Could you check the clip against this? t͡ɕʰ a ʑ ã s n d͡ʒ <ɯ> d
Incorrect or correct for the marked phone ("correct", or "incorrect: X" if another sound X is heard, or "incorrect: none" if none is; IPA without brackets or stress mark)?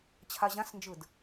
correct